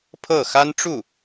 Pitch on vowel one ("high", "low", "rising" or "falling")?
falling